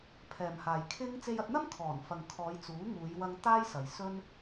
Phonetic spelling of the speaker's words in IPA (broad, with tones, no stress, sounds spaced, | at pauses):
pʰ ɛː˨ m h aː˨ j kʰ ɪ˥ ŋ t͡s e˧ j ɐ˧ t̚ n̪ ɐ˥ m kʰ ɔː˨˩ n f ɐ˨ ŋ kʰ ɔː˨˧ j t͡s uː˨˥ ŋ uː˨˧ j w ɐ˧ ŋ t̪ aː˥ j s ɐ˨ j s ɵ˥ n